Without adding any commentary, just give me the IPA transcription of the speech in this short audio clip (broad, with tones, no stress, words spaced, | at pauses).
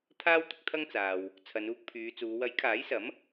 t̪ʰaː˥wt̪ɪ˧k̚t̪ʰɐ˥ŋt͡saː˨w | t͡sʰɐ˨˧nuː˧k̚pʰyː˨˧t͡suː˨˧ wɐ˨˥jkʰaː˨˥jsɐ˨˥m